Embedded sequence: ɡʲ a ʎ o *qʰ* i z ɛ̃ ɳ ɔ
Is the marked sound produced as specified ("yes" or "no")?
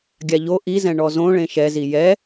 no